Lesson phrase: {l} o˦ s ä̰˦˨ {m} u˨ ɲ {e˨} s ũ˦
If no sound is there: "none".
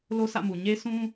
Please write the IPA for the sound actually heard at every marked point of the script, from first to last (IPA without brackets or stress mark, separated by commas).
l, m, e˦